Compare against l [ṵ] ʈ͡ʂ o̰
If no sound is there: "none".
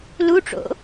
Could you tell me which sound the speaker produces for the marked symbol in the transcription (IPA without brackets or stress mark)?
u